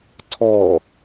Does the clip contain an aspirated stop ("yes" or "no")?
yes